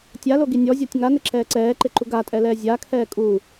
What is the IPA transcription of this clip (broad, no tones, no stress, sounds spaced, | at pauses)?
tʲ a l o ɡ i nʲ ɔ zʲ ɔ tʲ ŋ a n ɪ ǁ ɛː ǀ ɛː ǃ ɪ ǃ u ɡ a tʼ ɛ l ɛː zʲ a kʰ ɛː kʼ u